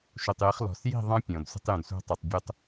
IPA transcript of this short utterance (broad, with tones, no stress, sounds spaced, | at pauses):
ʃ u˨ tˤ j ɪ˨˦ χ l ɔ̤˨ s j i̤˦˨ ðˤ ɑ̃˦ pʲ ɔ̃˨ d sʷ ə̤˧ tˤ j ũ˨ d sʷ ɑ̤˧ tˤ ə˞˨ tˤ bʲ ʊ˦ tˤ